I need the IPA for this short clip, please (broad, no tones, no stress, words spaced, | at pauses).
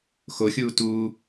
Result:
xoxʲuː tuː